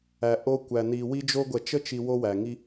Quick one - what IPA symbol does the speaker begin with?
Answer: æ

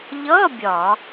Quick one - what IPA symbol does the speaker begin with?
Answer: ʎ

